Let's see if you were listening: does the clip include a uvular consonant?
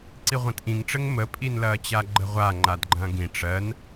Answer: yes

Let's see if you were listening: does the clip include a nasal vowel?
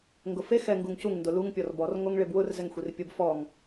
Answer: no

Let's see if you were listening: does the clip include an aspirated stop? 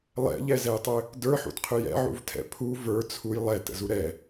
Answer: yes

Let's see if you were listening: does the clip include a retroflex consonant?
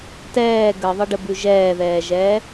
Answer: yes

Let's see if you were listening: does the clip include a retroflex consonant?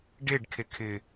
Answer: yes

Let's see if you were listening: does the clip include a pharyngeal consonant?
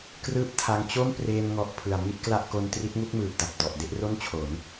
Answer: no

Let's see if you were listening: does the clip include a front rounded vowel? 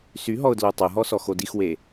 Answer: yes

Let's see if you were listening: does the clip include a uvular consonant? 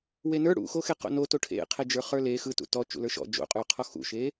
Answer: yes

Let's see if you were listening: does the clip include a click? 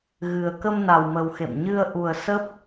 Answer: no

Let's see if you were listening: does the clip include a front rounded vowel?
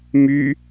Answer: yes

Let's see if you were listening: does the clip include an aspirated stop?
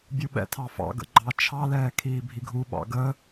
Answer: yes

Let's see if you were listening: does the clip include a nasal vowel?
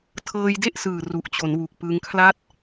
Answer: no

